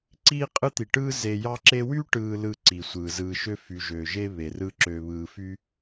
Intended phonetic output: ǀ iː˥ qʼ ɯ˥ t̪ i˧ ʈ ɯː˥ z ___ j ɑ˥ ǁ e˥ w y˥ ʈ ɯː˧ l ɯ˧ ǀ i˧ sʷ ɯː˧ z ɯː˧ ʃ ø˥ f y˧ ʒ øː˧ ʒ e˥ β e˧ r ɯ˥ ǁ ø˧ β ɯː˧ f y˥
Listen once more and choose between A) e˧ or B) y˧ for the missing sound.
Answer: A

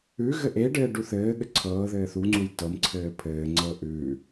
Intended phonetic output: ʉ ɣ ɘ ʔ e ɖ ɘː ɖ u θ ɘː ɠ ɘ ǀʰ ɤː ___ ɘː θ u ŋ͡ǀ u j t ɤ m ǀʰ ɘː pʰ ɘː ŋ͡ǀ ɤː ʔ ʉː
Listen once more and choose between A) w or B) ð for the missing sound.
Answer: B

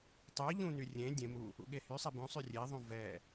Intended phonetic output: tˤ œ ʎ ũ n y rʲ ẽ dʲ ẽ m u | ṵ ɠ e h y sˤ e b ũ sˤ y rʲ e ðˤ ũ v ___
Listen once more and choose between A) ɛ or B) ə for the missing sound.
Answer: A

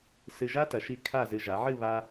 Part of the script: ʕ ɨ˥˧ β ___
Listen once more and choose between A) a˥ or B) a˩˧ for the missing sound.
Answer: A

